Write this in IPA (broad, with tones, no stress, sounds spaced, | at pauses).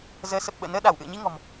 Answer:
z əː˨˦ s ə˨˩ p̚ ɓ ə̰ː˧˨ n əː˧ ɗ a˧˩ w ʔ ɨ̰˧˨ ə̯ ɲ i˧ ŋ ɔ̤˨˩ m